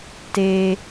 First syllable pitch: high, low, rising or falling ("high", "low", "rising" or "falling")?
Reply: high